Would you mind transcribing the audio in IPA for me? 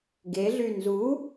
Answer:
ɡeɮy nzu

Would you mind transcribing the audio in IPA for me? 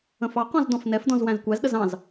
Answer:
ə̃fɑqɔ̃z dɔ̃fnɛfdɔ̃z wæ̃zkʷæzɗəz ɑ̃z

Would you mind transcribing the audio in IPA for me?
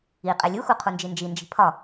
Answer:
i qʼelʲuxu qʰund͡ʒind͡ʒind͡ʒi̤ pʰɒ

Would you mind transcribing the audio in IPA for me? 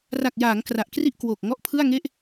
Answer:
ra˨˩k̚jaː˩˦ŋ kra˨˩ʔkri˥˩ʔkwoː˨˩k̚ ŋɔ˦˥ʔpʰɯ˥˩a̯ŋe˥˩ʔ

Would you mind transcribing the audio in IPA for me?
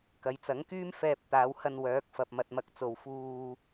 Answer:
kɐ˨˧jt͡sɐ˨˥ŋkyː˥m fɛː˧p̚ t̪aː˨˧whɐ˧n wœː˨˥k̚fɐ˨p̚mɐ˨t̚ mɐ˧k̚t͡so˨w fuː˨

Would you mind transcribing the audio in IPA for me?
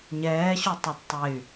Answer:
ɲɛːɕotˤɐd tˤey̯

